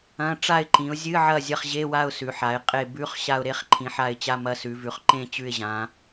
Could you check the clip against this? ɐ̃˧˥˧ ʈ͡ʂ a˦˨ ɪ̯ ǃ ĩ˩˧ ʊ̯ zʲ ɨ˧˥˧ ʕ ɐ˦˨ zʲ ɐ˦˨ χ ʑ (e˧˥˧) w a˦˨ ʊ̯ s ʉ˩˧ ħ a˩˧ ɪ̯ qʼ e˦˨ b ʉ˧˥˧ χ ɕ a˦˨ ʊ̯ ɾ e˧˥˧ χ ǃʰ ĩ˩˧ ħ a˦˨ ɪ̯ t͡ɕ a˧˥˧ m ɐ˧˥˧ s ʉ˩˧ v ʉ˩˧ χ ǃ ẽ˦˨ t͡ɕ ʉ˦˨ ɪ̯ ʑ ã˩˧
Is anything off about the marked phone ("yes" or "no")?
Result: no